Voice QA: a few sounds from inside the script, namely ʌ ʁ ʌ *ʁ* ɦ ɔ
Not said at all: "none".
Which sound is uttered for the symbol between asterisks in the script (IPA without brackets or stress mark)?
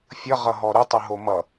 none